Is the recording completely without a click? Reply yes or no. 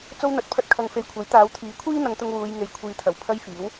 yes